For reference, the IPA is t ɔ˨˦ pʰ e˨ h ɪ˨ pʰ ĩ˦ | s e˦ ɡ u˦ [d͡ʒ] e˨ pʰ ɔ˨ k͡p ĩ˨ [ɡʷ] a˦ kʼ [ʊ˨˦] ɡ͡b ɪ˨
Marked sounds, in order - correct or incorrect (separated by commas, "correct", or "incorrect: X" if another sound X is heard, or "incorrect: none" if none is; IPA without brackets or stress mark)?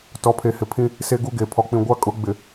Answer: incorrect: ɡ, correct, correct